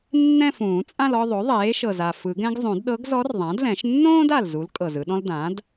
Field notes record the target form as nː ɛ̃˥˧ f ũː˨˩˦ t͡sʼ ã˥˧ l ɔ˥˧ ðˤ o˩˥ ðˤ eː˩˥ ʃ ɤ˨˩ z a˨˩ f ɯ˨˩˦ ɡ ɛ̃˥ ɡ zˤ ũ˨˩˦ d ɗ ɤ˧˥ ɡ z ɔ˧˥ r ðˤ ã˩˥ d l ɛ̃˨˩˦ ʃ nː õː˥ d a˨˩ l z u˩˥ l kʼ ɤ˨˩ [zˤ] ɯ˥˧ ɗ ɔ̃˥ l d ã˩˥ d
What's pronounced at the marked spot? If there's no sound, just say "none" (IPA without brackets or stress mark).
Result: z